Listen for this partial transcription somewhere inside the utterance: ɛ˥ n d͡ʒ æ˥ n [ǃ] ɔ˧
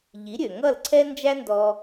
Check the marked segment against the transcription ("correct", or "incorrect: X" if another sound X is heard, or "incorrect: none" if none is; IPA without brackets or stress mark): incorrect: d